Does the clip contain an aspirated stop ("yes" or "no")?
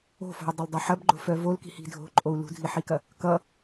no